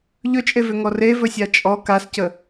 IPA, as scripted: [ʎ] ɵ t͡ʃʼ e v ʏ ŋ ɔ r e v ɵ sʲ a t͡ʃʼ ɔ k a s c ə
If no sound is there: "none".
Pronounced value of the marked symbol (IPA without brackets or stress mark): ʎ